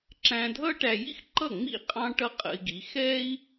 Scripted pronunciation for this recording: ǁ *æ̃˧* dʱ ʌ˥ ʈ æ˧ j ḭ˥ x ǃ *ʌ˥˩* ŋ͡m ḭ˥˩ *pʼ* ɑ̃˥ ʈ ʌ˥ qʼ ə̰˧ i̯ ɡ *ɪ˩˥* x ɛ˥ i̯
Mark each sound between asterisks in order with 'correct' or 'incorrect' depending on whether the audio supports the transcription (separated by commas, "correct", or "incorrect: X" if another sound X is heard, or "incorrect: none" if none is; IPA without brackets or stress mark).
correct, correct, incorrect: qʼ, incorrect: i˩˥